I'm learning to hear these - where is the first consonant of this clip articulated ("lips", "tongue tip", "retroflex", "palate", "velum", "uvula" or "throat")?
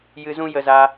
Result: palate